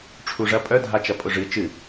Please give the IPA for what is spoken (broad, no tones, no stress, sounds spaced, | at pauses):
ʈ͡ʂʰ u ʐ ɐ pʼ œ dʱ a t͡ʃ ɐ pʼ ʊ ʐ ɨ t͡ʃ ɨ